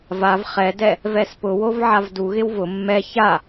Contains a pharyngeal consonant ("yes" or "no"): yes